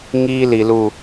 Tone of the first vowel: high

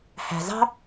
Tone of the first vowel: low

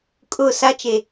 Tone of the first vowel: falling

